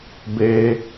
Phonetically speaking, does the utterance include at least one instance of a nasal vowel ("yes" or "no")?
no